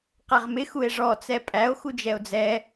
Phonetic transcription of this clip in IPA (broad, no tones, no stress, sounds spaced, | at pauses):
q æ ʁ m ɪ x u e̯ ʐ ɔ t͡s ɛ pʼ æ o̯ x u d͡ʒ ɛ o̯ d͡z ɛ